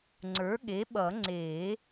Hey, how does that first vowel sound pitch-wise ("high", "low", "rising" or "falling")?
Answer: rising